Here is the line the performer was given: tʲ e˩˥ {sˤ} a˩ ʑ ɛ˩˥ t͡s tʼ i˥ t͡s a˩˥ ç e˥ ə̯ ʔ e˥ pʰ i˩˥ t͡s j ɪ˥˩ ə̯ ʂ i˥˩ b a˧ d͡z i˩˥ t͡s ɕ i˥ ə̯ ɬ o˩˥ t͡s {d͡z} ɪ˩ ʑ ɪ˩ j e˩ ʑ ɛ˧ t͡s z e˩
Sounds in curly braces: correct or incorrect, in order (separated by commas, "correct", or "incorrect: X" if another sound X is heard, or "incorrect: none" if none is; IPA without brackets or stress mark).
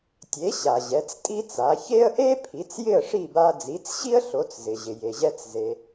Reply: incorrect: ɕ, incorrect: z